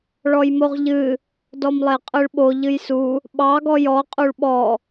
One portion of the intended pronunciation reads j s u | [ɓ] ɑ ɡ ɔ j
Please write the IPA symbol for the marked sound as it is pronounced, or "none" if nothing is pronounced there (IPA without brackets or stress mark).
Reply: ɓ